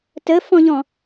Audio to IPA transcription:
t ə f ɔ̃ ʎ ɔ̃

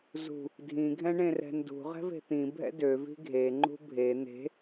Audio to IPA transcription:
z ṳ | dʱ ĩ ɡʱ ɛ̃ ɳ ẽ r ɛ̤ n d ṳ ʁ ɛ̤ v e̤ t̪ ĩ bʱ ɛ̰ d ø v i̤ ɡʱ e ŋ͡ǃ ṳ bʱ e n̪ e̤

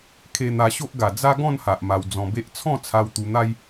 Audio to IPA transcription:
kʰ e˧ n̪ a˧ ɕ o˦ ʔ ɡ a˨˩ d͡z a˦ ɡ ɔ̃˥˧ n h a˨ ʔ m a˧ w d͡z ɔ̃˧ b e˦ ʔ t͡sʰ ɔ̃˥˧ t͡sʰ a˧ w t̪ u˧ n̪ a˦ j

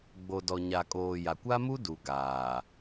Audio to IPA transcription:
ɡ͡b o˨ d ɔ˨ ɲ a˨ kʼ oː˨ j a˨ kʷ a˦ m u˦ d u˨ ɡ aː˨

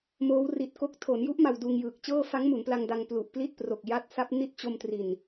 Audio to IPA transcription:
m oː˦˥ w r i˨˩ t̚ k o˦˥ k̚ tʰ o˩˦ n j u˦˥ ʔ m a˧ w d uː˧ ŋ j ɯː˨˩ k̚ t͡ɕ ɤː˥˩ f a˦˥ ŋ m u˩˦ n p l a˧ ŋ d a˧ ŋ p l u˨˩ ʔ p l i˥˩ t̚ p r o˨˩ k̚ j a˦˥ t̚ s a˦˥ p̚ n i˥˩ t̚ t͡ɕ o˧ m t r i˨˩ n

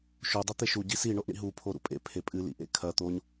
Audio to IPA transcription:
ʃ o dˤ e t̪ e ʃ u ɟ i s i ɳ o ʔ ɳ ḭ ɦ u pʰ o ɾ ṵ pʼ ḛ pʰ e pʼ ɨ l ḭ ʔ ḛ kʰ ɐ t̪ o ɲ

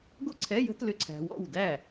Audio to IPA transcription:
ɡ o˥ ǀʰ ɛ˧˥˧ j ə̤˥ t l ʏ˧˥˧ ǀʰ æ̤˧ w ɔ̰˥˩ w d æ˥˩

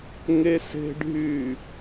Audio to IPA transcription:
ŋ e s e̤ ɖʱ yː

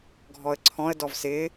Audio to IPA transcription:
ɡʱ ɔ ə̯ ǀʰ ɔ̃ ə̯ d ɔ v s ɪ

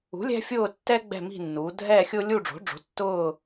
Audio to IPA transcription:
ṳ˩˥ lʲ ɛ̤˦ fʲ ʊː˦˨ tː ɛː˦ ɡ͡b ɛ̤˦˨ m i̤˦˨ nː uː˩˧ dʱ ɛː˦˨ xʲ ʊː˦ lʲ u˦˨ ɖ͡ʐ o̤˩˥ ɖ͡ʐ o̤˩˥ tː ʊː˦˨

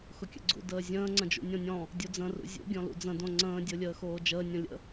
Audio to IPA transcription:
x ʊ kʲ ə̰ ɡ͡ǀ ṵ d əː zʲ ə̃ː ŋ͡ǀ ə̃ d͡ʒ ṵ nʲ õ nʲ ɔ̃ | dʲ u d͡z ə̃ r ṵ zʲ ṵ ɡʲ ɔ̃ l ṵ d͡z ə̃ d õ ŋ͡ǀ ə̃ː dʲ o lʲ əː x oː d͡ʒ əː nʲ õ lʲ ə̰

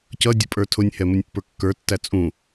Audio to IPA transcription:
c ʌ dʲ ə pʼ ə˞ tʰ ʊ nʲ h ɛ m ʊ nʲ pː ə˞ kː ə˞ tː æ t͡sʼ ũ

